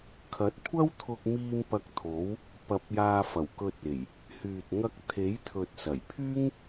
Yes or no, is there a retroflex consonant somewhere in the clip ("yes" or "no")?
no